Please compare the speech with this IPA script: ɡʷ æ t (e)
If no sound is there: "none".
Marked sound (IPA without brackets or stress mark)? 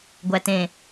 ẽ